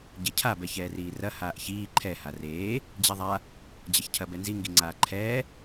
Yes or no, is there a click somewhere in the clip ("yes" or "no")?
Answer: yes